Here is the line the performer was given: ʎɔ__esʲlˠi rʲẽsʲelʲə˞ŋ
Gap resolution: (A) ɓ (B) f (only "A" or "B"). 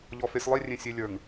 B